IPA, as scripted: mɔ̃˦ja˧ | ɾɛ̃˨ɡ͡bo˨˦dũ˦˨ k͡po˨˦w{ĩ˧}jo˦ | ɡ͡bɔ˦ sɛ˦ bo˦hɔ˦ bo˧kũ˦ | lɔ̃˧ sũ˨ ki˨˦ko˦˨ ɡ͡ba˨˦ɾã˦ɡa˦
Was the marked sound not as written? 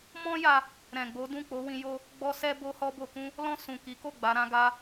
no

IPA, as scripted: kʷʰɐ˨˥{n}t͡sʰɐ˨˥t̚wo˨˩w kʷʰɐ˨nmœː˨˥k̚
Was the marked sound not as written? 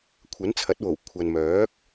no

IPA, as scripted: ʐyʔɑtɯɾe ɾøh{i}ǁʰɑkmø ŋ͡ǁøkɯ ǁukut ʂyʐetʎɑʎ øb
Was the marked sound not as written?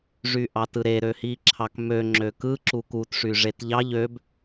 no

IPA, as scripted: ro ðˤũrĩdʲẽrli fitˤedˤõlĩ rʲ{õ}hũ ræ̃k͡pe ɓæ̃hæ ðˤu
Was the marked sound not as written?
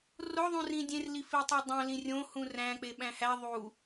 no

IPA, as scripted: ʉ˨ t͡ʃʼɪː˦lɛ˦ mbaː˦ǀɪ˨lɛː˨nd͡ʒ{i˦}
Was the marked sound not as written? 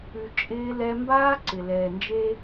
yes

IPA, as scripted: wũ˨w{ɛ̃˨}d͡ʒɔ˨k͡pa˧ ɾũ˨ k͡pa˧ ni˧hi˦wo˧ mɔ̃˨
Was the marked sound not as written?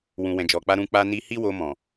no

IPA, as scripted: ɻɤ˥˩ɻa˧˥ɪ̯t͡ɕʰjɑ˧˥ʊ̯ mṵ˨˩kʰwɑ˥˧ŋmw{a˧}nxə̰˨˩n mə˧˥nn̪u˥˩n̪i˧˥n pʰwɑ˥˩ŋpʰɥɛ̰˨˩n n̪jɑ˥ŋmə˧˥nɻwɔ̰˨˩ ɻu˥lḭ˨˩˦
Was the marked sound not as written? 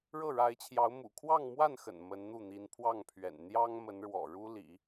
yes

